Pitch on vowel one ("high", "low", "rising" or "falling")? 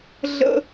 high